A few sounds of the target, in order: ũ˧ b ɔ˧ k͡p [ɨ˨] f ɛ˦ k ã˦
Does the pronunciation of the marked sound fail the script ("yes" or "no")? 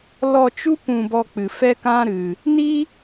no